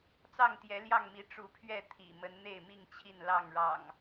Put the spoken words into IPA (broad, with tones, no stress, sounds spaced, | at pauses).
t͡s ɑ˥˨ ŋ t̪ j ɛ˨˦ l j ɑ˥˨ ŋ m i˨˦ ʈ͡ʂ u˨˦ pʰ ɥ ɛ˥˨ t̪ʰ ḭ˨˩ m ə˨˦ n n̪ e˥˨ ɪ̯ m i˥˨ ŋ t͡ɕʰ i˥˨ n l ɑ˥˨ ŋ ɻ ɑ̰˨˩ ŋ